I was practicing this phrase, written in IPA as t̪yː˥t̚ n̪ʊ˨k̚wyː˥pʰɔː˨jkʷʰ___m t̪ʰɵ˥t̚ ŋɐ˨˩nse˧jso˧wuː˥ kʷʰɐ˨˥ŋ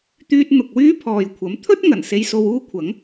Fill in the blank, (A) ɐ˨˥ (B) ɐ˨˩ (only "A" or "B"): A